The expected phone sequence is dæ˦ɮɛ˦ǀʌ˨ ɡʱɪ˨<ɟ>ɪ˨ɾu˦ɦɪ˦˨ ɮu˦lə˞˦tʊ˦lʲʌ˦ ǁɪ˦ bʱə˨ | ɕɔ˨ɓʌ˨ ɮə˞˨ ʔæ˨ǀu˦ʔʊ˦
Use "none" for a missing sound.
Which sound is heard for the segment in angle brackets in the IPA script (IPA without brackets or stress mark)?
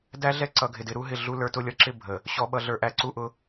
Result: d